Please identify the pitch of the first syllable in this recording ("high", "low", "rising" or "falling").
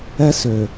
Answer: high